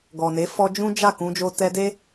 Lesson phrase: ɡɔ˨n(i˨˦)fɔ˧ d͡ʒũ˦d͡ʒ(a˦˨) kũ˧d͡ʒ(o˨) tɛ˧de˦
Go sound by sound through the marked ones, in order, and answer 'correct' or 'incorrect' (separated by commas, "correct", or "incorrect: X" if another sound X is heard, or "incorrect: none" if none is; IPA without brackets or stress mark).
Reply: incorrect: e˨˦, correct, incorrect: o˧